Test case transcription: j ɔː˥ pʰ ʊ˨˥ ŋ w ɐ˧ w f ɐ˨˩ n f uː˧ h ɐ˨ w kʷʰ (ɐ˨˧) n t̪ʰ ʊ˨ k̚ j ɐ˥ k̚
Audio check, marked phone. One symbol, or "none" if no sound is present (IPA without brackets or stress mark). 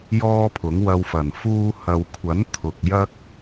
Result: ɐ˨˥